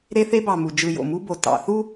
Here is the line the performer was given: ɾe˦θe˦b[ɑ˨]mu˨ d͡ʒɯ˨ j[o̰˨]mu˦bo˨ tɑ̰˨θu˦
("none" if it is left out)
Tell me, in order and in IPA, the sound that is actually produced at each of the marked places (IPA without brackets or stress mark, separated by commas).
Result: ɑ˨, o̰˨